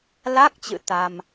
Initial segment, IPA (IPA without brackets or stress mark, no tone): l